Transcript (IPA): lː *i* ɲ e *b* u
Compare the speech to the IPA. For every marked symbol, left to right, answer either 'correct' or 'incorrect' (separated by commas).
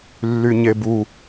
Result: incorrect, correct